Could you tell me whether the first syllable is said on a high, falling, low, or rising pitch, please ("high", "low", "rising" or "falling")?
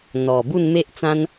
low